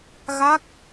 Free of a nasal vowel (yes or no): yes